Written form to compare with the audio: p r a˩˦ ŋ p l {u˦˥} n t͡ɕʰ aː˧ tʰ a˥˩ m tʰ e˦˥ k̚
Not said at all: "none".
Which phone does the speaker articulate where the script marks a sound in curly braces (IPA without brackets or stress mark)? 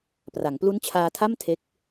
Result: u˦˥